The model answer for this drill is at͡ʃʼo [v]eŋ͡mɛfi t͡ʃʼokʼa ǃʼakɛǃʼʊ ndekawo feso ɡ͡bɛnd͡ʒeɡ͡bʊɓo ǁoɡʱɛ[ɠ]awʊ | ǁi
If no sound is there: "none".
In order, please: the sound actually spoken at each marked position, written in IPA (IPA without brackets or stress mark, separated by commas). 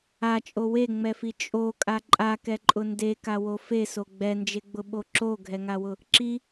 w, ŋ